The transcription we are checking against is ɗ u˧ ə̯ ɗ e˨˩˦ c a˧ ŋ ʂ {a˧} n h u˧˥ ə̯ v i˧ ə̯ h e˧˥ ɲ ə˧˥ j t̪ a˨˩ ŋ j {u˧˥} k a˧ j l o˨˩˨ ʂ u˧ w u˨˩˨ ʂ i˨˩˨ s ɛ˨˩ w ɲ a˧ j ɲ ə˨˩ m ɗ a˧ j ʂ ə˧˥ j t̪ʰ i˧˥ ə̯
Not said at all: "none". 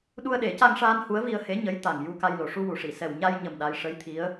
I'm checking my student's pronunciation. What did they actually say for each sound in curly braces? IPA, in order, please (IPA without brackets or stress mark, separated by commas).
aː˧, u˧